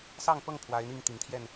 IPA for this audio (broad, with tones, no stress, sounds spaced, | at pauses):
s ɑ˥˨ ŋ p ɤ˥˨ ŋ pʰ w a˨˦ ɪ̯ n̪ i˥˨ ŋ t̪ i˨˦ ŋ t̪ʰ j ɛ˥˨ n